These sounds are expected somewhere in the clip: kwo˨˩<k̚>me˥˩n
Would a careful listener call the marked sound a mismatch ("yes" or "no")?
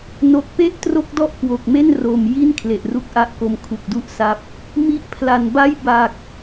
no